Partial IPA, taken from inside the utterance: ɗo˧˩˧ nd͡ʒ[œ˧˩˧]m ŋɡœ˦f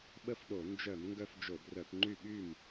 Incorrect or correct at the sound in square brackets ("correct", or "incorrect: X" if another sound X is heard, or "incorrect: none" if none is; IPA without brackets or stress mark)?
correct